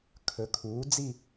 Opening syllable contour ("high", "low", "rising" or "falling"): rising